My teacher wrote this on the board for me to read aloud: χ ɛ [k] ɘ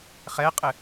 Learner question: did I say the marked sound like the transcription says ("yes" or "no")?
no